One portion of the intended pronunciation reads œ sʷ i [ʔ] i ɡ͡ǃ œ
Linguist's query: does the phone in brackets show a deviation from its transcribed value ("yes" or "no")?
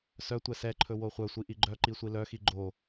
no